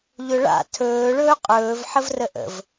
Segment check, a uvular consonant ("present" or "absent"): present